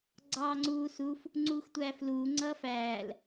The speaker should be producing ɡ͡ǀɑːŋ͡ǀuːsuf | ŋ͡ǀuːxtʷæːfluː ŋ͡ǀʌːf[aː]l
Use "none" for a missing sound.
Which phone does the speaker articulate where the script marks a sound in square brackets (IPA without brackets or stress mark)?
æː